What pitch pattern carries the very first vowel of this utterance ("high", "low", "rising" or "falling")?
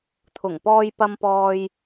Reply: low